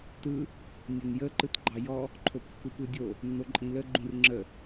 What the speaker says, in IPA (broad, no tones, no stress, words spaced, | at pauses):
tɯ | nʲənjə ǃɯtɡ͡ǃɑjɔ | ǃʰopkːupɯdʲo | nːoǃʼĩlə ɡ͡ǃũrŋ͡ǁə